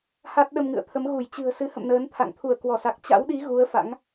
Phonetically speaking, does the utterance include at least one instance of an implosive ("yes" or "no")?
yes